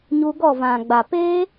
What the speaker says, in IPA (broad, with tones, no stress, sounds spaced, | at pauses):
ɲ u˧ ɡ ɔ˦˨ v ã˨ ɡ͡b a˨ p eː˦